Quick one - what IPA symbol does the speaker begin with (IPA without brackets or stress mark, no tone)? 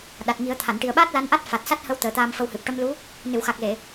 ɗ